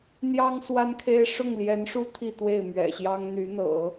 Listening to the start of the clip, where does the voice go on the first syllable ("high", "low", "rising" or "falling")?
high